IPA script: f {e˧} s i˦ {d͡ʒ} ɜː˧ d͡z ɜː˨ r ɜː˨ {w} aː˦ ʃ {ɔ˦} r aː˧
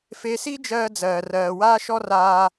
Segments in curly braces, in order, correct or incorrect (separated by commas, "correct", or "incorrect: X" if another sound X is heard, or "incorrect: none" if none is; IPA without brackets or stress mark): correct, correct, correct, correct